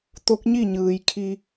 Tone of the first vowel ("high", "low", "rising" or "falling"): rising